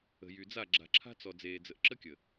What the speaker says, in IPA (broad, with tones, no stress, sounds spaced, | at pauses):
ə̤˨ j y˨ d͡z a˦˨ ɡ͡ǁ a̤˨ ǁʰ a̤˦ t͡s ɔ˨ d͡z eː˨ d͡z ə˨ ʔ ǁ ə˦ kʲ ə˨